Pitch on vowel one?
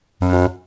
low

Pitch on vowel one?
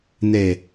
low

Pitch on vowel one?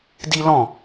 high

